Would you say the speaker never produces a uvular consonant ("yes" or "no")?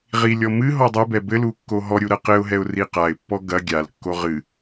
no